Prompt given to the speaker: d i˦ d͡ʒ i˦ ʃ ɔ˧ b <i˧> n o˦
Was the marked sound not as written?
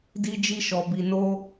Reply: no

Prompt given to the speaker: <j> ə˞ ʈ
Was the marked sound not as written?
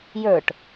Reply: no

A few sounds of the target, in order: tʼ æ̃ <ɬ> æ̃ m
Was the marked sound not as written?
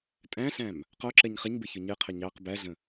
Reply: no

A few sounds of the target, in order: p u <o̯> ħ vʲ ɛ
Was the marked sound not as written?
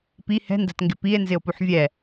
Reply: yes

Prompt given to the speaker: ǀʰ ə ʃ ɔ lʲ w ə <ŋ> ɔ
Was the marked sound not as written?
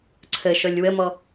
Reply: yes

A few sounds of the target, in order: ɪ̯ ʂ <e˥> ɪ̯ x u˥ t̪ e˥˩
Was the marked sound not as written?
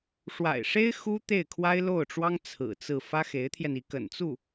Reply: no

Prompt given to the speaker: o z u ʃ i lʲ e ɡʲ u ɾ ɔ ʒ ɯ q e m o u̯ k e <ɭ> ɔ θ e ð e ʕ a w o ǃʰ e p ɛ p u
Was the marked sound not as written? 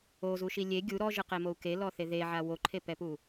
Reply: yes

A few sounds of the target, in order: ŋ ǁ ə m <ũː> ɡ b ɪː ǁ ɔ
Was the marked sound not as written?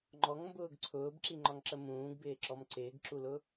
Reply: no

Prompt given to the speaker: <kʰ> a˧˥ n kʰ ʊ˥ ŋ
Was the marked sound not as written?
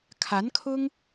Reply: no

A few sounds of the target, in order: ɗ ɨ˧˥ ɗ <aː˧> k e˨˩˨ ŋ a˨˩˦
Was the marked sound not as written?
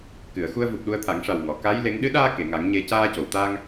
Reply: no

